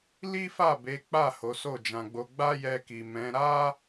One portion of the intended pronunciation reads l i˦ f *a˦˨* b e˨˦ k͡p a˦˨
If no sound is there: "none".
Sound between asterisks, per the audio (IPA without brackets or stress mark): a˦˨